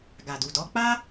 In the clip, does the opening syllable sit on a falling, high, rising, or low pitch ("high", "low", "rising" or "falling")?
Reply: low